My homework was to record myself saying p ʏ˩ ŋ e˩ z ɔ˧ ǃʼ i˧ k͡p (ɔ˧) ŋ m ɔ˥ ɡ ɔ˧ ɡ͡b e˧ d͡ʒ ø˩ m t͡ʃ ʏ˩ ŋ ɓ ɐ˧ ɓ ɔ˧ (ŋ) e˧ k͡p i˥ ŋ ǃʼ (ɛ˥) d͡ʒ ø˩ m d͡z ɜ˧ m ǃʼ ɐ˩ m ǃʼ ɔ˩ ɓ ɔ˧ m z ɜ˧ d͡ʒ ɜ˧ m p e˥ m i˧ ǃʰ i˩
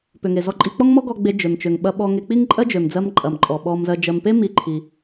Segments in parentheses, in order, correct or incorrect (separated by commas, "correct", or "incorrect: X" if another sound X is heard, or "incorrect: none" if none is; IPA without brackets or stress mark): incorrect: ɔ˥, correct, incorrect: ɜ˥